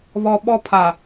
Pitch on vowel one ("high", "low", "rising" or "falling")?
low